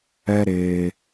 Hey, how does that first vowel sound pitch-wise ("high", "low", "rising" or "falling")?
high